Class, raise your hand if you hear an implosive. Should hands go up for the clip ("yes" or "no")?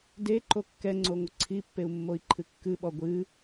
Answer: yes